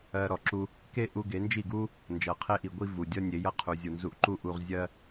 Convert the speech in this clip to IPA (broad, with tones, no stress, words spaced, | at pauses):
ɜ˧ɾɔ˨ ǁu˧ | ke˦ʔu˧ ɡe˨˦ nd͡ʒi˦˨ɡu˦ | nd͡ʒʌ˨qʰe˦ʔi˨ ɡʷi˦vu˨dʲʌ˦ nʲe˨˦jʌ˧qʰu˨ zʲu˨nzu˧ʔǃu˦ʔu˧ʁ zʲɜ˦